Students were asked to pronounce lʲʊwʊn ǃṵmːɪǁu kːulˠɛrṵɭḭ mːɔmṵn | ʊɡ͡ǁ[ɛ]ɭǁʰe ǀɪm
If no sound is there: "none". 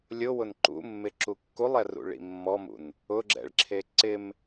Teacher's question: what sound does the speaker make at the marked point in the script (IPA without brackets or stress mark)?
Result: ɛ̰